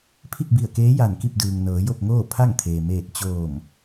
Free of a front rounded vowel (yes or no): yes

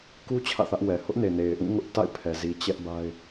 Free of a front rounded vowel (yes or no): yes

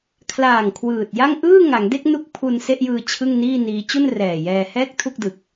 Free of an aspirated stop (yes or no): no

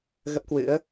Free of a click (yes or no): yes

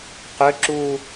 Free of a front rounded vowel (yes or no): no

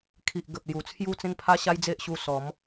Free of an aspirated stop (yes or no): no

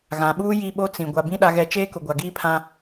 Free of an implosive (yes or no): no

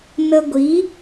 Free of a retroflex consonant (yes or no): yes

